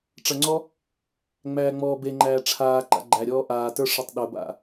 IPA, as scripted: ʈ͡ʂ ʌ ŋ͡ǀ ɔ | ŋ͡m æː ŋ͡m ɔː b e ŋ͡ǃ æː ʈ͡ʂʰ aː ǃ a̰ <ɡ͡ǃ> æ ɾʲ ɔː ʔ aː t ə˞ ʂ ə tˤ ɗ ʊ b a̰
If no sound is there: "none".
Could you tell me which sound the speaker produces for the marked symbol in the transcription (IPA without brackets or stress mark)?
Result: ɡ͡ǃ